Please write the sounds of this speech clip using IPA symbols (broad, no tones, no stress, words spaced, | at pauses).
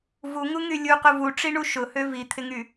vuŋuŋy lʲuqʊ vuʈ͡ʂiɳu ʃʊhø vit̪ʰɪŋy